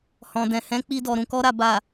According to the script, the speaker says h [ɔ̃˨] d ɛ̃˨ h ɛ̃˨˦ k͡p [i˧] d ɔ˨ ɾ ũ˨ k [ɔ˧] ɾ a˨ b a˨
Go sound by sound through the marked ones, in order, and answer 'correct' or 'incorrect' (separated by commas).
correct, correct, correct